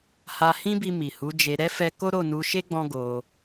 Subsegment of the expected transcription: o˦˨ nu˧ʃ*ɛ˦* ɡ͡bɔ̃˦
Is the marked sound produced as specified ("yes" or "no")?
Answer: no